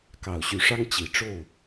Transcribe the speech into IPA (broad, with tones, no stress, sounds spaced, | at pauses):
k ɑ˨˩ ʊ̯ ɕ y˨˦ ʂ ɑ˦ ŋ t͡ɕ i˨˩ ʈ͡ʂ o˥˨ ʊ̯